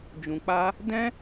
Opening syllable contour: low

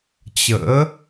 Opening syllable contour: rising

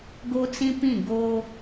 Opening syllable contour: high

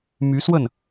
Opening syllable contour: rising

